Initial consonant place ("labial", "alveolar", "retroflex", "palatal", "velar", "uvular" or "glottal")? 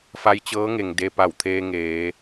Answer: labial